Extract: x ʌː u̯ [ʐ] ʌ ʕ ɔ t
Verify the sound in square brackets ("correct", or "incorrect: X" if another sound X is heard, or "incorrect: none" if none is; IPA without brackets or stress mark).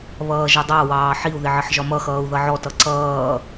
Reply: incorrect: ð